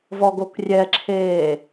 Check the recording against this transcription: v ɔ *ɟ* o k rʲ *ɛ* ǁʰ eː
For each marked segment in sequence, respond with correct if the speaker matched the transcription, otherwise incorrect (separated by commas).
incorrect, correct